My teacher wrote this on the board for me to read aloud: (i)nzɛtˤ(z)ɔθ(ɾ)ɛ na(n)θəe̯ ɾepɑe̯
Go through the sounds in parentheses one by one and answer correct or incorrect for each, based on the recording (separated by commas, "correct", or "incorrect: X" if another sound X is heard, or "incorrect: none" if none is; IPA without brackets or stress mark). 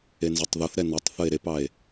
incorrect: e, incorrect: ð, correct, incorrect: tˤ